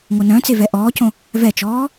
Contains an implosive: no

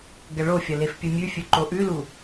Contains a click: yes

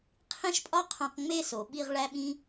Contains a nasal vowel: yes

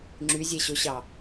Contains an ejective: no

